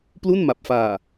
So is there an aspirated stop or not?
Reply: no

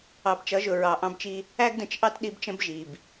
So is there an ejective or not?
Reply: no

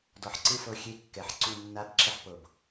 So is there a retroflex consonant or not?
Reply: no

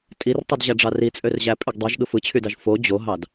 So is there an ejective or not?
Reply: yes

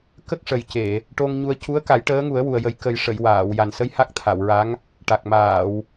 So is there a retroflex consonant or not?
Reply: yes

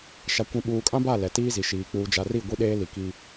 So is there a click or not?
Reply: no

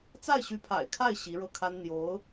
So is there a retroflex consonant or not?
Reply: yes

